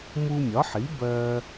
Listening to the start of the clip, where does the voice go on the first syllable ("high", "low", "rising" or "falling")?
high